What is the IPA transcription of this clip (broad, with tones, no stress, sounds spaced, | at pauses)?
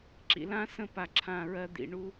ǁ ḭ˨ l ã˦ s ə̃˦˨ p a˨ ǁʰ ã˦˨ ɹ ɜ˦ d̪ ḭ˨ ɳ u˦